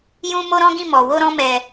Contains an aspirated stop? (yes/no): no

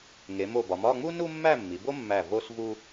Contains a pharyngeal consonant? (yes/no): no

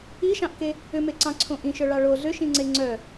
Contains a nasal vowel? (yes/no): yes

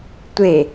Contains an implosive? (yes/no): no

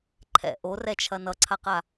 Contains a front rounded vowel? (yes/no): no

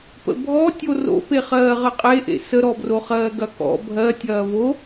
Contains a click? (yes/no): no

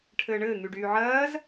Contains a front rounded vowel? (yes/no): yes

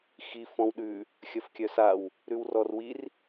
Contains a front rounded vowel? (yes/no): yes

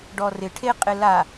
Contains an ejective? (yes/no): yes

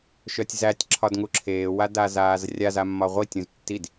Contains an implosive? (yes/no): no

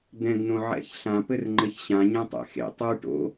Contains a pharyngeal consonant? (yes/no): yes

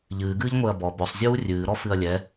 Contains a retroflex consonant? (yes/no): no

